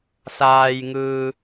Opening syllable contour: low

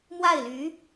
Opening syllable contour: falling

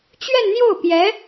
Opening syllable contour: falling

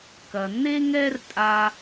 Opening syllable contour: low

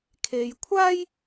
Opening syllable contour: low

